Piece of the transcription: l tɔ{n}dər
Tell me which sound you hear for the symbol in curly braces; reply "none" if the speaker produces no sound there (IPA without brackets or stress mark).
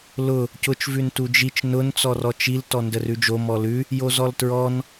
n